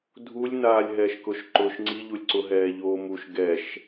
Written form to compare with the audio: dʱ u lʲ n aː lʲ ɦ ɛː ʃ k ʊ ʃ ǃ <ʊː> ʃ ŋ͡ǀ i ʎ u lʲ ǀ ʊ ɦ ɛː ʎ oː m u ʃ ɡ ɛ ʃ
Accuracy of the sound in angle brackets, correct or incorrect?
correct